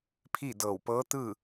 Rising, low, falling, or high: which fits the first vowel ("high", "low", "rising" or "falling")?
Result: falling